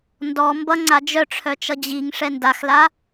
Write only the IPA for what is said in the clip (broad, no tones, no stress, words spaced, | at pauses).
ndɔ mbʌ ŋ͡ǀad͡ʒœʈ͡ʂʰœt͡ʃʌ d͡ʑiŋ ʂɛndaxla